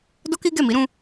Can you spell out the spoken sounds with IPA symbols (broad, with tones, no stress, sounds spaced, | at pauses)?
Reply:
d o˦ k i˦ ɡ e˦˨ m i˨˦ ɾ ũ˧